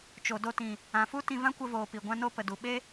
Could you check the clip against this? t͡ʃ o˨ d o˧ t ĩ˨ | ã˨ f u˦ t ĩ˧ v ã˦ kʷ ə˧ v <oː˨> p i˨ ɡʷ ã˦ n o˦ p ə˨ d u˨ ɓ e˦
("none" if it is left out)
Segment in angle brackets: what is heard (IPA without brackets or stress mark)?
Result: oː˨